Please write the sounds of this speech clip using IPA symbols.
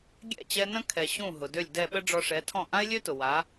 ɡʲ ɛ̰˥˩ t͡ɕ ɛ˧ n ə̃˥ kʰ ɛ˩ ɕ ũ˥˩ ɦ ʊ˩ d ø˥˩ lʲ d ɛ˥˩ ɓ ə˥ ɖ͡ʐ ɔ˧ ʂ ɛ˩˥ tʰ ɔ̃˥˩ ʔ ã˥ ɪ̯ lʲ ø˥ t ʊ˩ w a˩˥

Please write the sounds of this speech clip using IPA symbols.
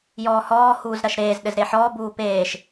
j ɔː h ɔː h uː z ɾ ɐ ʃ ɾ eː z ɗ ɘ z ɾ e ħ ɔː b uː p eː ʃ

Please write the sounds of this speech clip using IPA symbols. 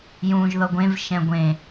j ũː ʒ ð ɤ ɡʷ ẽ v ʃ ɛ̃ ɡʷ ẽ

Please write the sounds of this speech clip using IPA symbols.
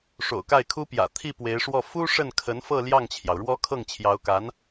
ʂ o̰˨˩ ʊ̯ k a˥˩ ɪ̯ kʰ u˥ p j ä̰˨˩ t̪ʰ i˥˩ p w e˧˥ ɪ̯ ʂ w ɔ˥˩ f u˥ ʂ ə˥˩ n kʰ ə˧˥ n f ɤ˥˧ l j ɑ˥˩ ŋ t͡ɕʰ j ɑ˩ ʊ̯ ɻ w ɔ˥ kʰ ɤ˥˩ ŋ t͡ɕʰ j ɑ˧˥ ʊ̯ k a˧˥ n

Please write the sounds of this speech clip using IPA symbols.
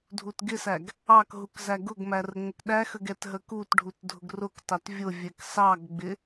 dʱ u t ɡ ɪ s æ ɡ | ɑ k ɦ u k z æ ɡ ʊ ɡ m æ r ə ŋ͡m ə k ɗ æ x ə ɡ ɛ t ɦ ə k u t ɖʱ u t dʱ ʊ ɡ r ʊ k t ɑ t vʲ ʊ vʲ ɛ k s ɑ ɡ ɡ͡b ɪ

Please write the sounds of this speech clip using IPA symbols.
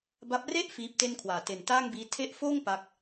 b a˦˥ p̚ r e˥˩ ʔ f iː˦˥ p̚ t e˥˩ n kʰ w aː˨˩ t e˨˩ n t aː˥˩ ŋ b iː˦˥ tʰ e˦˥ ʔ f oː˥˩ ŋ p a˥˩ k̚

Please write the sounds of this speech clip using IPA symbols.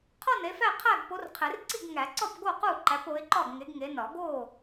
qʰ ɒ˥˨ n e˨˦ f æ˥˨ qʰ æ˥˨ ɡ p o˨˦ r qʰ e˨˩˦ r ǀ i˥˨ ɡ ŋ æ˨˩˦ ǀ ɒ˥˨ p ɡ o˥˨ q u˥˨ ǃ æ˨˦ p o˨˦ ɪ̯ ǃ ɒ˥˨ ɡ ŋ e˨˦ ɡ ŋ e˨˦ n ɒ˨˩˦ ɡ o˥˨

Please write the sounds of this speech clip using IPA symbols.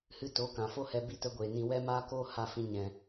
h ɨ˦ t o˨˦ k ã˨ f o˦ h ɛ˧ b i˦ t ə˦ ɡʷ eː˨ n ĩ˧ w ɛ˦ m aː˦ k oː˦ h a˦˨ f ĩ˧ ɲ ɛ̃˨

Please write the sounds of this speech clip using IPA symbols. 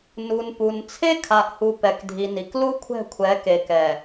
n u˨ n p u˨ n t͡sʰ e˦ kʰ a˨ ʔ h u˨ p ɛ˨ k dʱ i˨ n i˨ k l u˦ kʷʰ ɛ̤˦˨ kʷʰ ɛ˨˦ k e˨ k ɛ˨

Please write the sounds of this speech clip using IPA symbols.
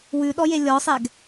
w ʉ ɗ ɔ j e lʲ ɔ sˤ ɛ ɡ

